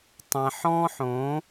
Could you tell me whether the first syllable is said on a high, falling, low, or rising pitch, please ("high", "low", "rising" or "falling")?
low